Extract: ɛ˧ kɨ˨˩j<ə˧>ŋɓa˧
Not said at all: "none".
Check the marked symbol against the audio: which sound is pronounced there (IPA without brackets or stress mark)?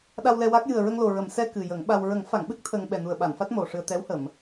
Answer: ə˨˩˦